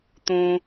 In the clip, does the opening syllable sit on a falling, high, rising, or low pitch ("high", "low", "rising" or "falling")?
low